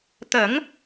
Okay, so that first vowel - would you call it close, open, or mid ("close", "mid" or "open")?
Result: mid